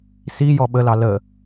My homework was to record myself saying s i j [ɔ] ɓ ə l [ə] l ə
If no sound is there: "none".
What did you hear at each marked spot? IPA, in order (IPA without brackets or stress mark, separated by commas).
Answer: ɔ, ɑ